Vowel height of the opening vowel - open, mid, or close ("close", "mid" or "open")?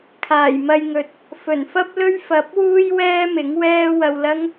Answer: open